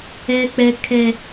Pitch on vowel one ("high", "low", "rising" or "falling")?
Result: high